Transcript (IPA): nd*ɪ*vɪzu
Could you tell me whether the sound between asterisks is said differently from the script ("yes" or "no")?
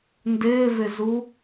yes